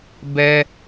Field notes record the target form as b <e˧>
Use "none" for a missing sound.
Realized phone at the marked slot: ɛ˧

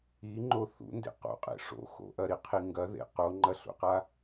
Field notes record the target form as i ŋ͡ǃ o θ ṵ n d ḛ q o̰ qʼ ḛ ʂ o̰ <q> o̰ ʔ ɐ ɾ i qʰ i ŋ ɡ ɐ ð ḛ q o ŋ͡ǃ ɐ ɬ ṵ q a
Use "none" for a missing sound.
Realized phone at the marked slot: x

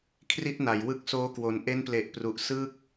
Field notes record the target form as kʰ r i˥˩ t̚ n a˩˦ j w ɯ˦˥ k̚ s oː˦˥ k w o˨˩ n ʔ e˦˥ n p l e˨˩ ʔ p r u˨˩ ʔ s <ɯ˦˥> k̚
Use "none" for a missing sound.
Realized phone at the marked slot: ɯ˥˩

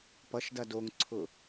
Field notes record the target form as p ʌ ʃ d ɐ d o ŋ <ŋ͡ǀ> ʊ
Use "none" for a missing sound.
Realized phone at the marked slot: ǀʰ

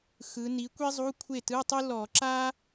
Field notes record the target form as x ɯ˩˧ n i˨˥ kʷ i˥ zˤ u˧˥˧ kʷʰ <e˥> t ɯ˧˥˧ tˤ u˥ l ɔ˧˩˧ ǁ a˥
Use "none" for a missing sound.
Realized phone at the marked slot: e˥˩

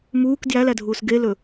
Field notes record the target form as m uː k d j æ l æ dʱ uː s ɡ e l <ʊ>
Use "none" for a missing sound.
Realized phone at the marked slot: ɵ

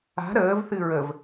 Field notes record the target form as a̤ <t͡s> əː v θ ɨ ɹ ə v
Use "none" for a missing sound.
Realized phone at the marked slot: ɾ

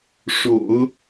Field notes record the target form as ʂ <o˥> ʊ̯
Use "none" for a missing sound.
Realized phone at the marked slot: o̰˨˩˦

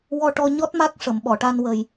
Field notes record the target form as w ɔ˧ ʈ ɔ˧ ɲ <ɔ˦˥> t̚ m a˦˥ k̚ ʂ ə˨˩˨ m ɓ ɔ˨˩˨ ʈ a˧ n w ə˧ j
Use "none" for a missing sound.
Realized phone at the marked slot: ɔ˦˥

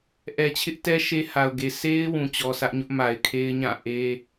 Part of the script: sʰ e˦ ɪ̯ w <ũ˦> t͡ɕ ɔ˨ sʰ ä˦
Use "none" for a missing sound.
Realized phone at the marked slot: ũ˨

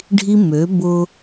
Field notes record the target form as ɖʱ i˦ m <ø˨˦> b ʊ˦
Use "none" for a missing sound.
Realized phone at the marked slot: ø˨˦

